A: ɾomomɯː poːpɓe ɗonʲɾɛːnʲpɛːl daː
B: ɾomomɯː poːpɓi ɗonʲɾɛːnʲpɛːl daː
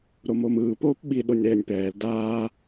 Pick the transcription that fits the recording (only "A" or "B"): B